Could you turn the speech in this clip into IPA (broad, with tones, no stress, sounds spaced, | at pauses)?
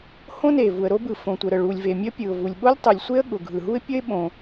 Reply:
h õ˥ n e˩ v u˩ ə̯ ɾ o˥ b ɯ˩ f õ˩ tʷ ə˩ ɾ ə˩ ɭ u˩ lʲ v e˩ mʲ ə˥ pʲ ɯ˩ ʊ̯ v u˩ lʲ ɓ o˥ lʲ tˤ ɯ˩ lʲ sʷ e˥ ə̯ ɠ ʊ˩ ɡʱ ɯ˩ ɦ u˥ ɪ̯ pʲ ə˥ ɪ̯ ɓ õ˩